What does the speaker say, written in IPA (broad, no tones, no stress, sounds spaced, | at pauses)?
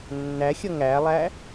nː æ xʲ ʌ ŋ æ lˠ æ